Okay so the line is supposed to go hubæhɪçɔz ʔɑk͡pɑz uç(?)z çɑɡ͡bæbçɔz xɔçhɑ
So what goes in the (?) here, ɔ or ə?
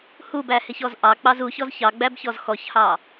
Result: ɔ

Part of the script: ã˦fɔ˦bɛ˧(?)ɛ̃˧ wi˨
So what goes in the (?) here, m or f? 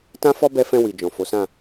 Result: f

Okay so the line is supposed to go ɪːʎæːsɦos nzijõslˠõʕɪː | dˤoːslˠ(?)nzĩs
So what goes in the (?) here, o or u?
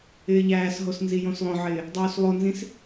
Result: o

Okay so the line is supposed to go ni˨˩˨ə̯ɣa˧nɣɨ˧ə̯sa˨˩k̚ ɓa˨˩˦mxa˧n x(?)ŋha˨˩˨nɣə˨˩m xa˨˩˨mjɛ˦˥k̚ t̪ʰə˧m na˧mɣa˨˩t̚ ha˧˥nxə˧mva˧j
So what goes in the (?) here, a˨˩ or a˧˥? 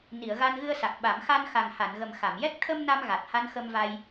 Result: a˨˩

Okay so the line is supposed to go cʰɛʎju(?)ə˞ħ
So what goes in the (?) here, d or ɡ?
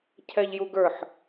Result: ɡ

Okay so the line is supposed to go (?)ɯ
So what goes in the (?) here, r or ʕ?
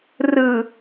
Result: r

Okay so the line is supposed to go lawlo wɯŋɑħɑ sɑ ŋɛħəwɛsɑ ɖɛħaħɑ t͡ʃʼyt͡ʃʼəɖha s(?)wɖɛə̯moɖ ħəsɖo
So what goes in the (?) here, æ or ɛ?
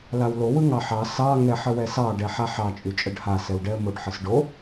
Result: ɛ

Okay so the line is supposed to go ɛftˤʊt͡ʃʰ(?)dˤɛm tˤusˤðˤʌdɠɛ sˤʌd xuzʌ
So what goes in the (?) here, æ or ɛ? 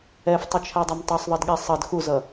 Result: æ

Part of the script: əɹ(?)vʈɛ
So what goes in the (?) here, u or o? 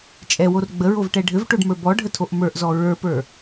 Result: o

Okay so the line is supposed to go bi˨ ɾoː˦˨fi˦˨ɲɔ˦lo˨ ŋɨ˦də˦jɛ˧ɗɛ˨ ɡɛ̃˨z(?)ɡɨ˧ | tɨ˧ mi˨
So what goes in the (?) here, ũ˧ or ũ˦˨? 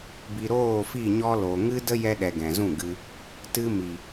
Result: ũ˦˨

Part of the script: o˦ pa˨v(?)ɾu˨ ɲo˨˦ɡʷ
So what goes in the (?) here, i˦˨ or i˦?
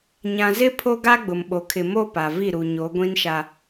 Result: i˦˨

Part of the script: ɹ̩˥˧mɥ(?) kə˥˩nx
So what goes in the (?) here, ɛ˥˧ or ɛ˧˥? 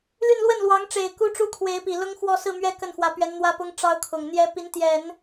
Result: ɛ˥˧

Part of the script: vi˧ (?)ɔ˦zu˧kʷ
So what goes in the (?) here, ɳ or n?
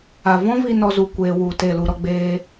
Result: n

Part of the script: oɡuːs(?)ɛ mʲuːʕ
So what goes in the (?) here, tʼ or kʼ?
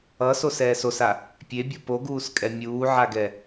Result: kʼ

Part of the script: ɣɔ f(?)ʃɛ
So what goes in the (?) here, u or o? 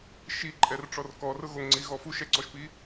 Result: u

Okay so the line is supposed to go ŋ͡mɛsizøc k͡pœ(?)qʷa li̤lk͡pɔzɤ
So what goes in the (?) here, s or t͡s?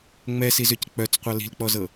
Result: t͡s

